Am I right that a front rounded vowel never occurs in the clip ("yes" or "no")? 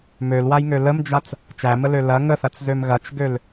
no